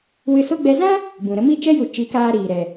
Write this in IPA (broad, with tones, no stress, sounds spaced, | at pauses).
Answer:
w ɨ˧ s o˦ ɡ͡b ɛ˧ z ã˦ | b ũ˨ ɾ ə˧ m i˦˨ t͡ʃ ɛ˦ j u˨ t͡ʃ i˨˦ k aː˧ ɾ iː˨ ɾ ɛ˨